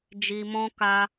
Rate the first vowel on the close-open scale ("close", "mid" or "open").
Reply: close